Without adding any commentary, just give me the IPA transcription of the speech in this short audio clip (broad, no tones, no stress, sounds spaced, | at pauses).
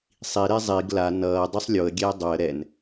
sˤ i ɾ e zˤ i ɡ l a n ʌː dˤ i sˤ lʲ o ə̯ ɡʲ ɛː dˤ o ə̯ ɾ ɛ n